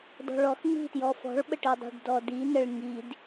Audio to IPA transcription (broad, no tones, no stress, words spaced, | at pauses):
dɔ̤ɭɔxŋ͡mi̤tjɔ fɔ̤ɭɓəʈidˤi̤ɖ dɔdinəɭ ŋid